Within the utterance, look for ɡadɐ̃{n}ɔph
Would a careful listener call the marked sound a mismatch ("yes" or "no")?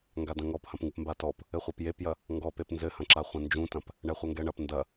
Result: yes